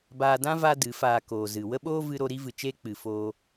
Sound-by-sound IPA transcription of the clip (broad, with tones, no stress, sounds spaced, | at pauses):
b aː˧ d ã˦ v a˦ d ɨ˨˦ f aː˧ k oː˨ z ɨ˨ w ə˦ ɓ oː˦ v ɨ˧ ɾ o˧ ɾ i˦ v ɨ˨ t͡ʃ eː˦ k͡p ɨ˨ f oː˧